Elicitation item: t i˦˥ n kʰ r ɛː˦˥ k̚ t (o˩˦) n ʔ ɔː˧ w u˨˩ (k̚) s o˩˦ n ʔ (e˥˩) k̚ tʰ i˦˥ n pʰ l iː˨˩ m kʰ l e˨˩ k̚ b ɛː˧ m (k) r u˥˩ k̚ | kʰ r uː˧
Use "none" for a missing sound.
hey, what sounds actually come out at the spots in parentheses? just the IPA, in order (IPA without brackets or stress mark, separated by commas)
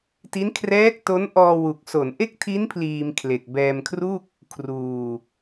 o˦˥, k̚, e˥˩, kʰ